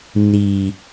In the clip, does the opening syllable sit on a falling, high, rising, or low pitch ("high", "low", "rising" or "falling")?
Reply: low